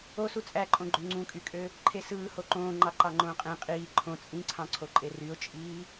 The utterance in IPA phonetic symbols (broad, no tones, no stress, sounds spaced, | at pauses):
o s u t͡sʼ æ ǃʼ õ ɡ͡ǃ ø ŋ͡ǀ ũ kʼ y kʼ ø | ǃʰ e s ɯː h o ǃ õː ŋ͡ǃ ɑ ǃ ɑ ŋ͡ǃ õː qʼ ẽ qʼ iː ǃʰ õ t͡sʼ ĩ ǀʰ ɑ̃ ǀʰ o ǃʼ e r y ʊ̯ t͡ʃʼ iː